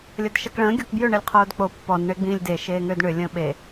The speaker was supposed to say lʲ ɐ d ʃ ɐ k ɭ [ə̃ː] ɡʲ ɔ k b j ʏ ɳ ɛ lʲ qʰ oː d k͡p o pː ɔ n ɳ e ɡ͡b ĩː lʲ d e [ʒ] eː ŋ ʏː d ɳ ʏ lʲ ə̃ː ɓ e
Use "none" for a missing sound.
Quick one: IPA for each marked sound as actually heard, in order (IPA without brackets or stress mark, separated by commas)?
ə̃ː, ʃ